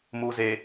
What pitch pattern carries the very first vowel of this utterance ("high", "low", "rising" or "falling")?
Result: low